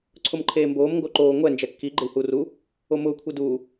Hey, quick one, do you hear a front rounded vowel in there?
no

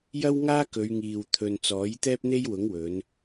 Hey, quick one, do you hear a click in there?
no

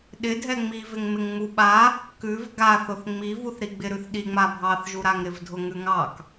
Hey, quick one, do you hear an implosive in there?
yes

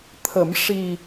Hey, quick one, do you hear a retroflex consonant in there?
yes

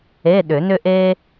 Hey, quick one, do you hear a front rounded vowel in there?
yes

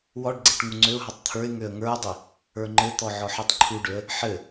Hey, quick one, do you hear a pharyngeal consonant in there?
yes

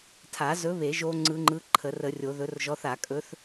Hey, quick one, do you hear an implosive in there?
no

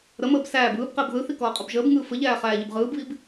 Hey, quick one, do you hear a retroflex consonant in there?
no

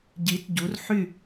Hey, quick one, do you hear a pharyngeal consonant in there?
yes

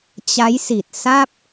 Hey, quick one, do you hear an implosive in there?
no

